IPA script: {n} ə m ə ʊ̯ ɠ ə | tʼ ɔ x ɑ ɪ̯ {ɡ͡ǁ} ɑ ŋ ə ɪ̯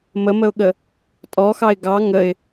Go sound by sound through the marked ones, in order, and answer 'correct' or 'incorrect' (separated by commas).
incorrect, incorrect